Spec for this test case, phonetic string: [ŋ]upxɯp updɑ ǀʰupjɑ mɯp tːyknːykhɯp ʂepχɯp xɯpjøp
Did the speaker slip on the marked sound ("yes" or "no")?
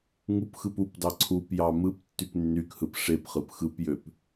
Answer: no